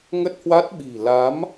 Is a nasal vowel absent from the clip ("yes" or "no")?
yes